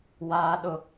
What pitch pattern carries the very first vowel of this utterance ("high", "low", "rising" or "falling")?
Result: low